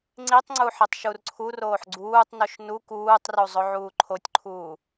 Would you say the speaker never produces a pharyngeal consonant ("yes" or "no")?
no